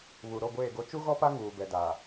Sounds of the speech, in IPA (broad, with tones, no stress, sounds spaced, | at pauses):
β u˨ ɾ o˦˨ ɡʷ eː˦˨ ɡ o˦ t͡ʃ u˦ ɣ ɔ˦ p a˦ ŋ uː˨ b ɛ˨ d a˨